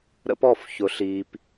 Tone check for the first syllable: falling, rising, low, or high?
high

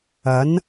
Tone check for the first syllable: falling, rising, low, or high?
rising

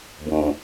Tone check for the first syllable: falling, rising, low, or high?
low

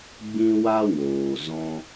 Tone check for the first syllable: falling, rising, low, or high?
high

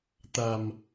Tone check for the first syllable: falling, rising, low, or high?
low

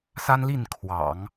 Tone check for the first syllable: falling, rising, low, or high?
high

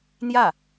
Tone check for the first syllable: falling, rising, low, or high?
falling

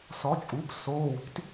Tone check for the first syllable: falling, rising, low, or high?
rising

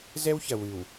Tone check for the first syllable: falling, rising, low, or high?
high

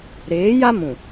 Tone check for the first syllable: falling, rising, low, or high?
rising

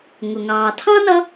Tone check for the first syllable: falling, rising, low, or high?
low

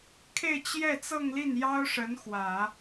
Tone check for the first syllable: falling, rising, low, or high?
falling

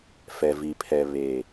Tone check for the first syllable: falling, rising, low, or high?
low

